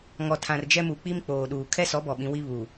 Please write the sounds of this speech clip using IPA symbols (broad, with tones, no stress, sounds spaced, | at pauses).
ŋ ɔ˨ tʰ ã˨ r d͡ʒ ɛ˦ m u˨ k͡p i˦ m k͡p oː˨ ɗ uː˨ kʰ ɛ˦ s ɔ˨˦ b ɔ˨ ɓ ĩ˨ w i˦ β uː˨